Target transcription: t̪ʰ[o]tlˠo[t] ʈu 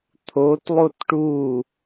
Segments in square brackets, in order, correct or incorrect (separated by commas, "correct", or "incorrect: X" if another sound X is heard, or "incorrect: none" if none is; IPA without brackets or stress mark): correct, correct